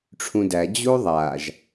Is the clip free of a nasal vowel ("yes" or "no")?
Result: no